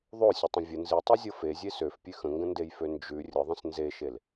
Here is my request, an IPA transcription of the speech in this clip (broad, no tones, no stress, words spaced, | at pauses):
ðˤosʲətˤə̃ vʲə nzitˤizʲɤ fezʲe søfpʲʉ xə̃ŋɡə̃ndejfø nd͡ʒʉ rʲəðˤə̃s nzeʃel